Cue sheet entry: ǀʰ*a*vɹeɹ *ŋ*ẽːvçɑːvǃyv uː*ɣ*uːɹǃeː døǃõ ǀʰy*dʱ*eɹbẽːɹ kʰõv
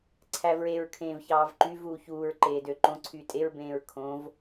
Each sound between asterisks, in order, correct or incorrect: incorrect: æ, incorrect: kʰ, incorrect: ç, incorrect: tʼ

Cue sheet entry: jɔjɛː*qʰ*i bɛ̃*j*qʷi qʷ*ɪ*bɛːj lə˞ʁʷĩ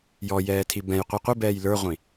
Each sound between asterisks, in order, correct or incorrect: incorrect: tʰ, correct, correct

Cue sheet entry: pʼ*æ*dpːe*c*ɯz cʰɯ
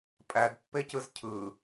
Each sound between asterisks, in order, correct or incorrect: correct, correct

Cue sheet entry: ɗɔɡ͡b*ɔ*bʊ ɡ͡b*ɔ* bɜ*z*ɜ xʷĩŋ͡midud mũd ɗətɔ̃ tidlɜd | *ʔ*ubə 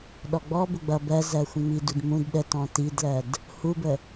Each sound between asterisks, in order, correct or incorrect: correct, incorrect: ʌ, correct, incorrect: h

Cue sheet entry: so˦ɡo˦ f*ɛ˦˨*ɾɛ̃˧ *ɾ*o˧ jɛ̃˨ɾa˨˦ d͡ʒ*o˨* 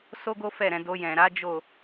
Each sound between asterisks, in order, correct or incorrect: correct, incorrect: d, incorrect: o˦˨

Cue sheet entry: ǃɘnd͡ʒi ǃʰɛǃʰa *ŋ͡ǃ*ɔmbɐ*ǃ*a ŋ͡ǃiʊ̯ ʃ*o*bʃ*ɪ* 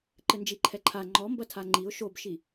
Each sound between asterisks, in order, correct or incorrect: correct, incorrect: tʰ, correct, incorrect: i

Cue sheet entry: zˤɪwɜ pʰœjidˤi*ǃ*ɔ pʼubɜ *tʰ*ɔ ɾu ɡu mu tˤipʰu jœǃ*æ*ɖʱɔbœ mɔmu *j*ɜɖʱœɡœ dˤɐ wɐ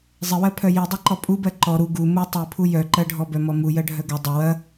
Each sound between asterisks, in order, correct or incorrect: correct, incorrect: ǃ, incorrect: ɜ, correct

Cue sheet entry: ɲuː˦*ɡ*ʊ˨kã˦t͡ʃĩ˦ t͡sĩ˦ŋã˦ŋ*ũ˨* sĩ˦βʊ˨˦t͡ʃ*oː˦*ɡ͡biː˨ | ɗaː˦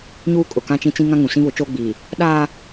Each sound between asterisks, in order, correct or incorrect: incorrect: kʼ, correct, correct

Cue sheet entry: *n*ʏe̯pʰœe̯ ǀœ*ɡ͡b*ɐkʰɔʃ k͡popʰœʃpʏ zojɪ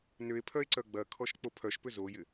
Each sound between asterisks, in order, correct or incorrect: correct, correct

